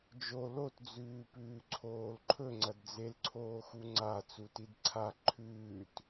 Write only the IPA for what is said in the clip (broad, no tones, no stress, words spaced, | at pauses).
d͡ʒo lotd͡zʉːpʉː ǀʰoːlǃʰɵ ŋ͡ǀɐdd͡zelǀʰoːxu ŋ͡ǀa t͡sutidǀʰa ǃʰʉːt